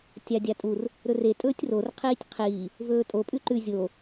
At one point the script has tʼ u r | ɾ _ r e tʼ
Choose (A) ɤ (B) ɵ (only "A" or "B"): B